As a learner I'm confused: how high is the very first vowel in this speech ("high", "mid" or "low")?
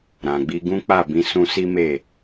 low